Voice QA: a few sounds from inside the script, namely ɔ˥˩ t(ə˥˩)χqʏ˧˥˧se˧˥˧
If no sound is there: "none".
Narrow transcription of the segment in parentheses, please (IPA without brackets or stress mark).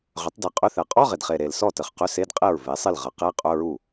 ə˨˩